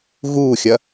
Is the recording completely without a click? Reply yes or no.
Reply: yes